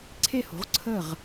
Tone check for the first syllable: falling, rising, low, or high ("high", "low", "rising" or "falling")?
falling